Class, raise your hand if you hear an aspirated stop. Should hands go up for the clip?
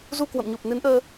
no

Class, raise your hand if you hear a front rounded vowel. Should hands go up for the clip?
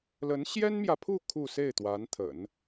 no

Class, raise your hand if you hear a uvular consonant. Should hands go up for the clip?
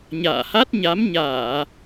no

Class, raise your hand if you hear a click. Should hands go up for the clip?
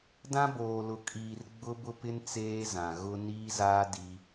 no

